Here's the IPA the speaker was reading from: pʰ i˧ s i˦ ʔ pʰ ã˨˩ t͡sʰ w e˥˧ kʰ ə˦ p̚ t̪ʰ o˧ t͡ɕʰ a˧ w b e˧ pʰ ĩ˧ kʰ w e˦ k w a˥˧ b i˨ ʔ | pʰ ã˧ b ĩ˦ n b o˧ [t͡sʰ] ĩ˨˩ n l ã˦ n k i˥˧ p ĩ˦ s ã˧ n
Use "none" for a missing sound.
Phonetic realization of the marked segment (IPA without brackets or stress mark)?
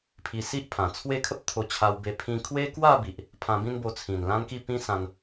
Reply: t͡sʰ